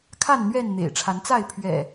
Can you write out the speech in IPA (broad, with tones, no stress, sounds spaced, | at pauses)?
kʰ a˥˨ n n̪ ɥ ɛ˥˨ n n̪ ḛ˨˩ ɪ̯ ʈ͡ʂʰ a˨˦ n t͡s a˥˨ ɪ̯ pʰ ɥ ɛ̰˨˩